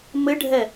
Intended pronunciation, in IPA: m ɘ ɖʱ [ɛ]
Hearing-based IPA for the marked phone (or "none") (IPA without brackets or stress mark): ɛ